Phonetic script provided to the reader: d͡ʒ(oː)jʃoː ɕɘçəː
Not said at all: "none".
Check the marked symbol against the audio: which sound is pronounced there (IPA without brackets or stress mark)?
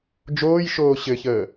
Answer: oː